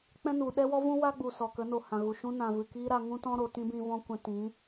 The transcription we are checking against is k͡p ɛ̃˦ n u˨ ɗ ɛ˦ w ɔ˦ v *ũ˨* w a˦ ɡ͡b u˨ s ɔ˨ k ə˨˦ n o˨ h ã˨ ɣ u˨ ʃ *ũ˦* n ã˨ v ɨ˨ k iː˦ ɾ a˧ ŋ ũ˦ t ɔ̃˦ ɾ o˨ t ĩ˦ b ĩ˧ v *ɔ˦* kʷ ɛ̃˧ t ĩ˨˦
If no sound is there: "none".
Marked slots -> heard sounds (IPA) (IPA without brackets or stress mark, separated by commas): ũ˦, ũ˦, ɔ̃˦